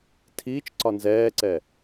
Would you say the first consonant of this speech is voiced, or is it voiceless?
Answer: voiceless